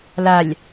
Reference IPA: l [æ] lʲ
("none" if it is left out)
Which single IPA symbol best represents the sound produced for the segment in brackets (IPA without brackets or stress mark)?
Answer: a